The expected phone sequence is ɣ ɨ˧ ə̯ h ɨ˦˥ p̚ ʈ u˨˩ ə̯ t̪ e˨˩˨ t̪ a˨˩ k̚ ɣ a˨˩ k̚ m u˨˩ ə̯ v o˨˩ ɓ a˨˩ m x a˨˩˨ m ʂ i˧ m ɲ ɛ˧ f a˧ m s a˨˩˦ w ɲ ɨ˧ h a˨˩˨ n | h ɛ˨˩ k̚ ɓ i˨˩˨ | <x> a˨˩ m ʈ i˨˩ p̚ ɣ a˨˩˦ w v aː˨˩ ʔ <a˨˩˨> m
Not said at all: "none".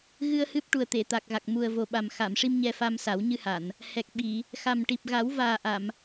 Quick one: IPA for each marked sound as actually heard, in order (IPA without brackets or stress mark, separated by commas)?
x, a˨˩˨